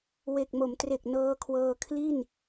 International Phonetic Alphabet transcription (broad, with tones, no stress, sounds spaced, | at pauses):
w e˨˩ k̚ m o˩˦ m t r e˨˩ k̚ n ɤː˧ kʰ w ɤː˧ kʰ l i˥˩ n